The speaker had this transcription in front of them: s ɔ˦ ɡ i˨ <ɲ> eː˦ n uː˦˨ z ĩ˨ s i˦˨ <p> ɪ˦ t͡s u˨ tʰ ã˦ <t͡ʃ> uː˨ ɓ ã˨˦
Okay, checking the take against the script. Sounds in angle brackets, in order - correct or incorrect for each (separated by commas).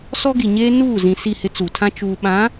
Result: correct, incorrect, correct